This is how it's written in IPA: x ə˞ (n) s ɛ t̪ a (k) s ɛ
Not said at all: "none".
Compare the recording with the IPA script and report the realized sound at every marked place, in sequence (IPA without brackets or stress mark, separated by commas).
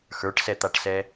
ʈ, ʈ